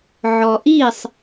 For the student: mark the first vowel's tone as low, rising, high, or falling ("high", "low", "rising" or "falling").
low